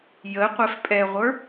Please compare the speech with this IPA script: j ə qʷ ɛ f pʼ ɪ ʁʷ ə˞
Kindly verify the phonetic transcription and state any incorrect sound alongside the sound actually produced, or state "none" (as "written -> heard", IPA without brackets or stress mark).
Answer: ɪ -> ɛ